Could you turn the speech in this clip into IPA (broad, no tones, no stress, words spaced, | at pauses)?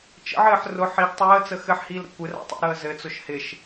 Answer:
t͡ʃə̰ʕɘːħ rʊ ħiɡ tˤəːt͡sə xɘħhiːlɾə̰ kʷɪra̰ tˤə̰ɾəː zɘt͡sʊʃ hɪʃ